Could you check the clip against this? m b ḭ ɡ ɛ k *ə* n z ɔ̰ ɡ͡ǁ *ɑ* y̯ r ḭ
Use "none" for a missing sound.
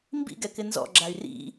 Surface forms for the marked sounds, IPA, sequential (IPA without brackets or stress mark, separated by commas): ɪ, a